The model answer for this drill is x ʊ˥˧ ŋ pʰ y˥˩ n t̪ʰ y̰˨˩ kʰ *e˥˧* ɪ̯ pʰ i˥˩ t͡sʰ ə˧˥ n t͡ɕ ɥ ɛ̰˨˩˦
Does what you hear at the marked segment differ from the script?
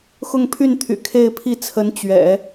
no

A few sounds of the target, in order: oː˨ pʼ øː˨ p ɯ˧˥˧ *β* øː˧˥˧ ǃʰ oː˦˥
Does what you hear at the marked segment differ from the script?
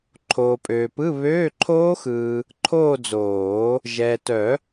no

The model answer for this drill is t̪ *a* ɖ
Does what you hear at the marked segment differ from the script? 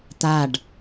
no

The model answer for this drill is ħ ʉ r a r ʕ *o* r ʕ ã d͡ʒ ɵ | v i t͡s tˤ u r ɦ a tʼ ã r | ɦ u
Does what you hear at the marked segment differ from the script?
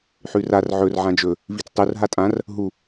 yes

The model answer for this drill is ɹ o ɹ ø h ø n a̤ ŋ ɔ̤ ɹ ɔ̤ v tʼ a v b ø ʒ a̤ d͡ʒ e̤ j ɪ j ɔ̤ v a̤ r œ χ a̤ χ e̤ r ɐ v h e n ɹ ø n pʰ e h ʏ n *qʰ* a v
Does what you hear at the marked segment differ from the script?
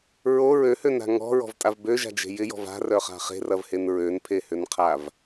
no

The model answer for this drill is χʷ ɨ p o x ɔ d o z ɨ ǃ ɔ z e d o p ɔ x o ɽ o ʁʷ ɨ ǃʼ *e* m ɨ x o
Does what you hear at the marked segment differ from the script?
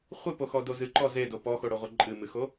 yes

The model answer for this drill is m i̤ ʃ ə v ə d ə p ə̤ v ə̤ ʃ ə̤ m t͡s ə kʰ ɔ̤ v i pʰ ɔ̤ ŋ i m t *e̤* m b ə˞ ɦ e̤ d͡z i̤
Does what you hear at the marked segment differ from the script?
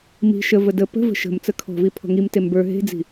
yes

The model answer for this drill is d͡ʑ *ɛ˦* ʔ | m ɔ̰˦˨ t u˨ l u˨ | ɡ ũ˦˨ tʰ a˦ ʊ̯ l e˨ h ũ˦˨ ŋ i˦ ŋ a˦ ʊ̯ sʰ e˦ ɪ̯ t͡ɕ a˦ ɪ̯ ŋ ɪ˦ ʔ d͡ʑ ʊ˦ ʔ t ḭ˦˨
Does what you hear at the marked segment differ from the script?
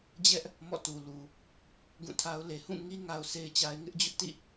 no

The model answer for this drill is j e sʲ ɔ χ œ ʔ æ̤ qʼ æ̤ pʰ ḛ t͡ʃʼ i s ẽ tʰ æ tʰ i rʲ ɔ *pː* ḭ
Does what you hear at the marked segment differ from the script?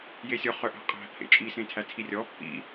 no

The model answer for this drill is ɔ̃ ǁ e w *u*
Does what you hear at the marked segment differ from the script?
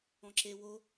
yes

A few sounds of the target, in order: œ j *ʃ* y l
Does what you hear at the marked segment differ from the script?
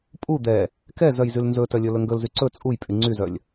yes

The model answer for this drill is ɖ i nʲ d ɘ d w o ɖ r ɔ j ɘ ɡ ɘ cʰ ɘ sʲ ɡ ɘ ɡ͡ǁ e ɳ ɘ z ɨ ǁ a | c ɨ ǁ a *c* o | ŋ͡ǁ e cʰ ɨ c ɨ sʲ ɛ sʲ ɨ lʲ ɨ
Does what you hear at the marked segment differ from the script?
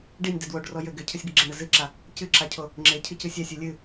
yes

